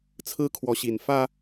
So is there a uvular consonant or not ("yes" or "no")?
no